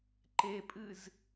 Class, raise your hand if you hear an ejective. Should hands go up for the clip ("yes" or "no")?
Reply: yes